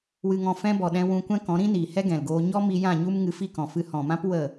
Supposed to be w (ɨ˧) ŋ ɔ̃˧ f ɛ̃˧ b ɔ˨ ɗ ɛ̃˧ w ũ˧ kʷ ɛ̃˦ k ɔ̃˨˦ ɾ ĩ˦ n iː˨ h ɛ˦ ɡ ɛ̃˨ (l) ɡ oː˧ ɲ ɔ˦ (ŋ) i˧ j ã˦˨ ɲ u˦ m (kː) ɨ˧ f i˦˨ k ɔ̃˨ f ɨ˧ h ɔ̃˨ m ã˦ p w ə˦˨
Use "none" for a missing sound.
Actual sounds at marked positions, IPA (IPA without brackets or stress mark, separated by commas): ɨ˧, l, m, ŋ